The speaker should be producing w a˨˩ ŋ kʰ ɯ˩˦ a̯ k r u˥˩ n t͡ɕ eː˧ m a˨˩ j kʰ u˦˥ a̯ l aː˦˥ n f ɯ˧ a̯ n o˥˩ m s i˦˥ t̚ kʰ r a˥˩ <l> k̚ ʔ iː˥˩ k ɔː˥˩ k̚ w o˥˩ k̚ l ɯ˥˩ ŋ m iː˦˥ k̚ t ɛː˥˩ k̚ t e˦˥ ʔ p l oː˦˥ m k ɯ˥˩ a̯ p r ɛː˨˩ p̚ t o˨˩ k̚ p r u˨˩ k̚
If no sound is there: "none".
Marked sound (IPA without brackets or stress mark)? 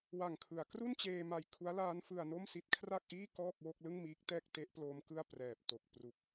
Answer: none